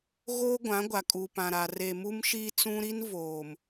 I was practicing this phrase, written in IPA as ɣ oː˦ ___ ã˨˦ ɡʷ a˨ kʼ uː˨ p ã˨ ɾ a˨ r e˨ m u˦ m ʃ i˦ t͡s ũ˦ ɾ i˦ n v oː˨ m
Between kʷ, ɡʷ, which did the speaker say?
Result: ɡʷ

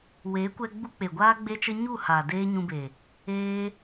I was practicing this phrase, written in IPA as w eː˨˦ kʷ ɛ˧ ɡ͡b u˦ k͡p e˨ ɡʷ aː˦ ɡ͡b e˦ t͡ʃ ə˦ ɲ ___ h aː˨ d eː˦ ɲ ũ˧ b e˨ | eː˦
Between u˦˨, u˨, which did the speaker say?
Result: u˦˨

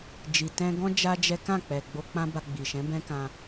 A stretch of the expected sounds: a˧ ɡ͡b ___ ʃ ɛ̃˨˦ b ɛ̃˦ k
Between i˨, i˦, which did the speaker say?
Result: i˨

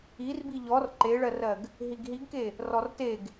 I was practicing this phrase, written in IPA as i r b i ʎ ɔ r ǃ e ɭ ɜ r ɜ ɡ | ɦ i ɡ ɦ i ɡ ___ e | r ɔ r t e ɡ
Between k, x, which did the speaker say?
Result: k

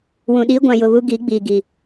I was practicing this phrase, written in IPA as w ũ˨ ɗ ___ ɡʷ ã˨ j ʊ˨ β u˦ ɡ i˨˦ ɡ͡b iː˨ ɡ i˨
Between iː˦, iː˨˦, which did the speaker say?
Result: iː˦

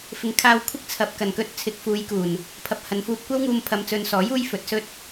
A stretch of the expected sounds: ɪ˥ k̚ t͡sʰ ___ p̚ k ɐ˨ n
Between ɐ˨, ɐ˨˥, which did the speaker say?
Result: ɐ˨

